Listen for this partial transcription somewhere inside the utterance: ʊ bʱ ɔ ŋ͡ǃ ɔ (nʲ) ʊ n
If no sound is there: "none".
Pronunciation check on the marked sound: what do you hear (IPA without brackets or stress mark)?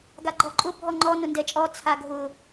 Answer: n